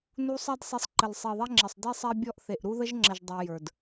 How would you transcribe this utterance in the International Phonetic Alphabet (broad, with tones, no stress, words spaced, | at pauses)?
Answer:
nu˦sˤɛ˦dsˤi˧sˤǃə˨l sˤi˨ðˤɛ˦ŋ͡ǁə˨sˤdi˦ sˤɛ˦bʲɔ˦ʔ θe˨ʔɾu˦ ðə˦ʒŋ͡ǁə˨ʒ dˤə˞˧ jə˞˨d